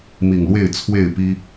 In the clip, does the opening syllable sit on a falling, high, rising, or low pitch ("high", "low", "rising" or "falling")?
low